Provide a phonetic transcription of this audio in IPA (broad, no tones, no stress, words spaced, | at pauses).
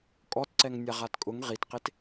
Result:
kʼɔtǀɛŋnʲaʁat kʼʊŋ ʁitqet